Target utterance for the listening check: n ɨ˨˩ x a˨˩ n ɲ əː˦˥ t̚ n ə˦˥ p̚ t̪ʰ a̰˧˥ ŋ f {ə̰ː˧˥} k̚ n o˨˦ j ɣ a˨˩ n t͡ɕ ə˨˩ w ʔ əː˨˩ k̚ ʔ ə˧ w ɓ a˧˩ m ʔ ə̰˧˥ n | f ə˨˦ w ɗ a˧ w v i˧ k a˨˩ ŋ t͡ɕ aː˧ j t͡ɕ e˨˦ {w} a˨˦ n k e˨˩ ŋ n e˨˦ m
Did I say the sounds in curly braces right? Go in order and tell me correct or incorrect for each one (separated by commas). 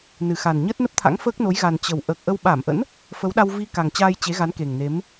incorrect, incorrect